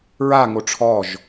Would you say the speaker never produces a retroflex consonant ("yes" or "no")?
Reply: no